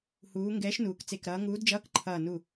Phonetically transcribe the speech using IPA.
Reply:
huː˩˧ ŋɡɛː˨˥ʃnuː˩˧k t͡se˧˩kɾʌː˨˥ ŋuː˨˥dd͡ʒʌː˧˥˧k ǃʰʌː˧˩ nu˧˩

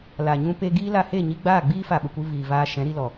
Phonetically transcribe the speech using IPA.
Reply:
la˨ɲũ˧ pe˧ɡiː˦la˧ he˦˨ɲi˧ ɡ͡baː˦˨ɡ͡biː˦fa˨ ɓə˨kʷɨ˧ viː˨vaː˧ ʃɛ̃˨˦ɾi˧lɔ˨

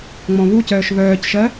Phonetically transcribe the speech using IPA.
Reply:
ŋ͡mɔ̃βucœːʃ βœːcʃɜ

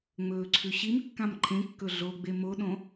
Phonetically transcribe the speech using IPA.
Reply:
ŋ͡mɵːǀʰʉɕimkːãm ǃʰẽkːɵ ɮoɡ͡be moɗõ

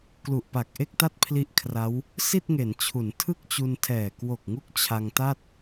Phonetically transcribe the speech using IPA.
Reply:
klu˨˩ʔpa˨˩k̚ ʔe˥˩k̚ta˥˩t̚pʰli˦˥ʔkʰra˦˥w | si˥˩t̚ŋe˩˦nt͡ɕʰu˩˦n tʰɯ˥˩k̚t͡ɕu˧ntʰɛː˨˩ kwo˨˩k̚ŋu˦˥k̚ t͡ɕʰa˧ŋta˥˩t̚

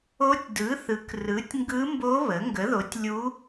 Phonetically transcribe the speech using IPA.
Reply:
o˧˥tʲdɯ˩˥ θɯ˩˥krɯ˩˥tʲŋɡɯ˧˥mbo˧˥ βə˩˥ ŋɡə˩˥ðo˩˥tʲlʲu˧˥

